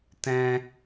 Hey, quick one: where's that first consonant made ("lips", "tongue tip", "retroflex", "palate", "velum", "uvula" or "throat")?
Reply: tongue tip